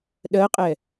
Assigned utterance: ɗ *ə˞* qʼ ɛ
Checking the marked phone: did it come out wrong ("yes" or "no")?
yes